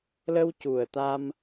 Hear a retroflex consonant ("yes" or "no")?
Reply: no